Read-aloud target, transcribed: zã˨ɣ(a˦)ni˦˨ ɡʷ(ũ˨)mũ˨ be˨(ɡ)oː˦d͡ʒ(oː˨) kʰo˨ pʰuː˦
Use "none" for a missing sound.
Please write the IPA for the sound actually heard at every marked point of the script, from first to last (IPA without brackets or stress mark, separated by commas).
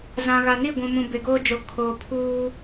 a˨, ũ˨, ɡ, o˨